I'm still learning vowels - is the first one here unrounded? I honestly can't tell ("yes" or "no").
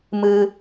yes